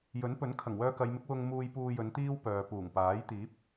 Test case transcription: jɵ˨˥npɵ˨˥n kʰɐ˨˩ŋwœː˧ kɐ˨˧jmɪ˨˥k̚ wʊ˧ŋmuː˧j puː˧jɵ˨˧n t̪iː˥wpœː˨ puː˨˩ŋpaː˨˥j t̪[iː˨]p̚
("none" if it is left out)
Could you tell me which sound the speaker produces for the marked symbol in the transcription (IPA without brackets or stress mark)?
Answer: iː˨˥